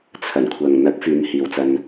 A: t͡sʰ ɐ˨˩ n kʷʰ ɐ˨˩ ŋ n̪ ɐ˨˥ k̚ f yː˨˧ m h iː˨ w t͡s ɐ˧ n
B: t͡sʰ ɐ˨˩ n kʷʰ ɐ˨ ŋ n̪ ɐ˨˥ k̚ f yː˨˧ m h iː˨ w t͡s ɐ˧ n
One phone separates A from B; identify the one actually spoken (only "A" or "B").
B